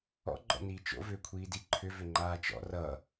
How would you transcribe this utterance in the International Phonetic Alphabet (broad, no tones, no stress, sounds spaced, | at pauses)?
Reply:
ɔ̰ ɡ͡ǃ ɔ̰ n iː t͡ʃ o̰ v ʏː kʷʰ iː d i ǃʰ ʏ v ʏ ŋ͡ǃ aː t͡ʃ ɔ̰ r ʌ